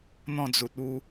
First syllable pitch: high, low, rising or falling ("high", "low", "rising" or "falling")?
falling